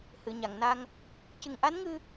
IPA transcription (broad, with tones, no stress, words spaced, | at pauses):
hɨ˨˩˨ɲa˨˩˨ŋna˧ŋ | cɨ˨˩ŋʔa˧˥nŋɨ˧